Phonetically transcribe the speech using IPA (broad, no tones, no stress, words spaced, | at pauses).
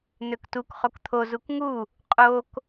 n̪øktuk χokt̪ʰo zukŋu | qʼok